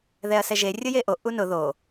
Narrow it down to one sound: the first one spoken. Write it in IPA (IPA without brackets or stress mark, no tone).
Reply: ð